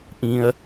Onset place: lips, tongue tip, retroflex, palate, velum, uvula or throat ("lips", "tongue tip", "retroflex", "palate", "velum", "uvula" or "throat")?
throat